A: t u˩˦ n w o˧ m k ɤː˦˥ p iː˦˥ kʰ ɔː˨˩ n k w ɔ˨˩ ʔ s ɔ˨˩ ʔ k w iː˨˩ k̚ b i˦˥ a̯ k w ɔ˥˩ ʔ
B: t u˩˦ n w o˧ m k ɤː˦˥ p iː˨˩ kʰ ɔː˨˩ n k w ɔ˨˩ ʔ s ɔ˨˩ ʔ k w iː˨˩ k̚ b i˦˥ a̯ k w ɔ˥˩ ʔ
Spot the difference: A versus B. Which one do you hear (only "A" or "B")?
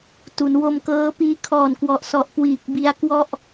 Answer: A